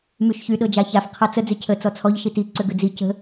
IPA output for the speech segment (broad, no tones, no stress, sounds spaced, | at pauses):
m y ʃ ç y ɗ ɤ d͡ʒ a ç a f qʰ ɤ t͡s ə d͡z ʏ cʰ ə t͡s ɔ t͡sʰ ɔ ʎ ʃ i t i ǀ ʏ ɡ ʏ d͡z i c ə̤